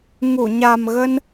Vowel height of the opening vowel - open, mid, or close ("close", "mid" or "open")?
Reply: close